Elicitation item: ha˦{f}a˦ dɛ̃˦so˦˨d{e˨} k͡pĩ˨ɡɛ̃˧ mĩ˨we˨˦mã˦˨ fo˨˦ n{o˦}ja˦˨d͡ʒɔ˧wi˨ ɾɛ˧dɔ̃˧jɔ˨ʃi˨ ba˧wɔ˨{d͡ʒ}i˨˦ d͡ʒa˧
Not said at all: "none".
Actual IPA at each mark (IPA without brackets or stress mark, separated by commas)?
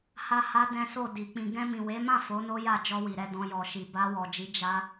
h, i˨, o˦, d͡ʒ